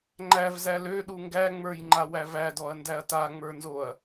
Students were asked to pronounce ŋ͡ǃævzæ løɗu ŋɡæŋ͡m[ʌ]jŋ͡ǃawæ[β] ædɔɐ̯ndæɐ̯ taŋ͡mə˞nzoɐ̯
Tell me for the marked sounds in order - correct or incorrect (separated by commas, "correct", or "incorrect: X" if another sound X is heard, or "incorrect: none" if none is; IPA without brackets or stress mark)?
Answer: incorrect: ə˞, incorrect: v